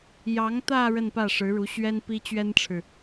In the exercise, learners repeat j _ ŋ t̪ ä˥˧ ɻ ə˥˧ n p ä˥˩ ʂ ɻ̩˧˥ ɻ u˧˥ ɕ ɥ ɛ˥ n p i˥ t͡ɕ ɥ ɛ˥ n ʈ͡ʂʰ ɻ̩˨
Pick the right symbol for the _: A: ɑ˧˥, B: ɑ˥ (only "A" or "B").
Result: A